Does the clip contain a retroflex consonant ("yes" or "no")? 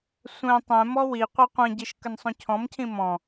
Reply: no